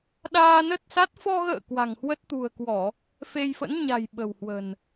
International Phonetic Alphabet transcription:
ɗ aː˧ n ə˦˥ t̚ s a˦˥ t̚ f ɔ˧ ɣ ə̰ː˧˨ k w a̤˨˩ ŋ h w ə˦˥ t̚ t̪ ṳ˨˩ ə̯ k w ɔ˧˩˨ | f e˧ j f ə̰˧˥ n ɲ a̤˨˩ j ɓ ə̤˨˩ w h w ə̤˨˩ n

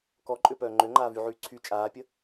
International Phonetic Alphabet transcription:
k ɔ ǃʼ ø p œː ŋ͡ǃ ø ŋ͡ǃ aː v y ʕ yː ǀʰ y t͡ʃʼ aː pʲ ə

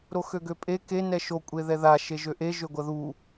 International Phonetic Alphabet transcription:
ɾ o x ø ɡ ø pʼ e k e n ɛ ʃ o kʷʼ e ð ɛ ð a ʃ e ʒ ø ʔ e ʒ ø ɡʷ ɐ ð u

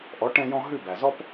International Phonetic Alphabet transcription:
ʔ ɔ˩˥ ʈ ɛ̃˧ j ɔ̃˧ ɦ ʉ˥˩ b æ˩ z ɔ˥ p

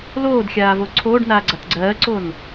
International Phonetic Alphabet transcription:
l oː d xʲ aː v o ǀʰ oː ɖ n aː ɡ͡ǀ a t ɡ͡ǀ ɜː ǀ oː n

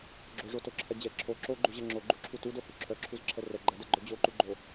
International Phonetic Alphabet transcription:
ɡ͡ǁ o ʐ o t o ǁʰ ɛ d͡ʑ ɛ ǁʰ o ǁ o ɡ͡ǃ u ʑ ɛ ŋ͡ǁ o ɡ͡ǃ u ǁʰ u t u d o h u ǁʰ œ ǁʰ u z ǁʰ ɛ r ɛ ɡ͡ǃ ɛ d ɛ ɡ͡ǃ œ d͡ʑ o ǃ u ɡ͡ǃ o

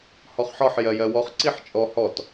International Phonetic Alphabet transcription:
h ɔ χ ħ ɒ ħ j ɜ j ɜ w ɔ χ ǀ i ħ t͡ʃʼ ɔ h ɔ t

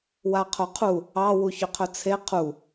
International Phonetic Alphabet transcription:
w a qʰ o qʰ u | ɑ w u ç ʏ qʰ ɵ t͡sʰ e qʰ u

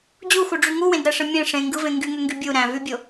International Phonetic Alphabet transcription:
d͡ʑ u x u ɖ͡ʐ y ŋ u w ẽ d ɾ æ ʂ ɯ mʲ ẽ ʂ ẽ ŋ ɡ ɯ v ẽ ŋ ɡ y ŋ ø ŋ ɡ y bʲ u ɾ æ̃ v y bʲ o

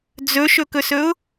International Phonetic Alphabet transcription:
d͡z ɵ ʃ ɵ k ɵ s ɵ ʊ̯

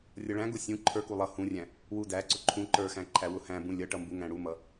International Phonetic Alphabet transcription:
rʲ ʌ ɭ æ̃ ɡ ʊ sʲ ũ ǃʰ ə˞ k u lˠ ʌ h ũ rʲ æ̃ | w u d æ ǀ ʊ ǃʰ ũ ǃ ə˞ x æ̃ ǃʰ æ w ʊ h æ̃ b ũ lʲ ʌ ʈ ʌ m b u ŋ æ̃ ɽ u m ʌ

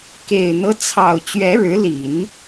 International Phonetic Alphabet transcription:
k e˨˩ ɪ̯ n̪ ɤ˦ t͡sʰ ɑ˨˩ ʊ̯ t͡ɕ ɥ ɛ˧˥ ɻ ɻ̩˧˥ l i˨˩˦ n

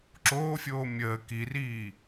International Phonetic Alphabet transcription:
ǁ oː fʲ oː mʲ əː k i r iː

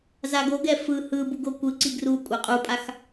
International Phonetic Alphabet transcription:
z a ɡ o ɡ ɛ f ɯ h ɯ b u ɡ o kʷ ɯ ǀ i ɡ r u kʷʼ ɛ qʼ u pʼ a x

